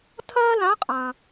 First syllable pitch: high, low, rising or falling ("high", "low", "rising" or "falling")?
high